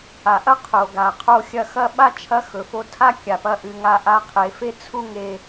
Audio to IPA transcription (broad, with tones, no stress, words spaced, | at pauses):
a˩ʔɐ˥ qʰo˩ɡa˩ qʰo˧ xʲɐ˧˥xɐ˥ ɓa˥t͡ʃʰɐ˧˥ xɵ˩fo˧tʰa˥ kʲa˩pɐ˧˥ʔɨ˩˧ŋa˧ ʔa˧˥qʰe˩˧fe˥t͡sʰu˥ ŋe˧